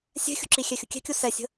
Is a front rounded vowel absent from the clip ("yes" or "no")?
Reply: yes